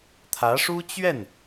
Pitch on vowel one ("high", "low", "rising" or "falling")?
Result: rising